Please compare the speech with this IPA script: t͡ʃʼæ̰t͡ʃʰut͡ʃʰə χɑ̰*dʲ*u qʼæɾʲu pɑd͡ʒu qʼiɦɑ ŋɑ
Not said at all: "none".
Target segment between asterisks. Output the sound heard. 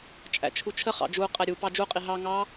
d͡ʒ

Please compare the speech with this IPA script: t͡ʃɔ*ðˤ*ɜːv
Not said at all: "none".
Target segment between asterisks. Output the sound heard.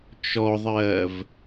ðˤ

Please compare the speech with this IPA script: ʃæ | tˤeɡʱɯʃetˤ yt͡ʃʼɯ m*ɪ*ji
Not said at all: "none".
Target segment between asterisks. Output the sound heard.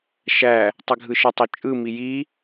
i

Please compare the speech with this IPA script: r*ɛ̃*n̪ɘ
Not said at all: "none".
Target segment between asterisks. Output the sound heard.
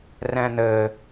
ɛ̃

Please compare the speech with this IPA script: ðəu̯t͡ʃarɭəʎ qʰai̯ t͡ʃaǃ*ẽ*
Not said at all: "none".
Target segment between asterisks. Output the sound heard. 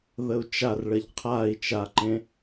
ẽ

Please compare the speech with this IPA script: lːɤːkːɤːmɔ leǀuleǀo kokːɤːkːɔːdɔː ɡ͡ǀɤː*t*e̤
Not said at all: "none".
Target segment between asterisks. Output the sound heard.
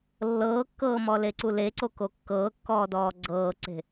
ǀ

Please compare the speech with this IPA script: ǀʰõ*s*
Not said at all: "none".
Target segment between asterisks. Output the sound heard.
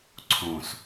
s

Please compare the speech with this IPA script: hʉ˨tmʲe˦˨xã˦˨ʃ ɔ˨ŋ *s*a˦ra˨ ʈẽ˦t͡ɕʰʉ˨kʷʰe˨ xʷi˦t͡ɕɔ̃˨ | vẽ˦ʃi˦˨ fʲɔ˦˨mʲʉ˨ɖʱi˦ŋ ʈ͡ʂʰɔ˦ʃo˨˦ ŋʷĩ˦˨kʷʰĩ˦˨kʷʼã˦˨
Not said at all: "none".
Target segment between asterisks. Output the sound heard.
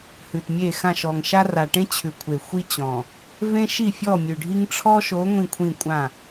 ʃ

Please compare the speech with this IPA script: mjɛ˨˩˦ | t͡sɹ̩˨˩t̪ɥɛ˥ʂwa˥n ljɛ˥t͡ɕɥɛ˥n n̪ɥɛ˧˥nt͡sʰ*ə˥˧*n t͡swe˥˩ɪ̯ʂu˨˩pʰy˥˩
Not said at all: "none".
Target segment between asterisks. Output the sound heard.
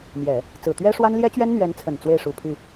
ə˨˩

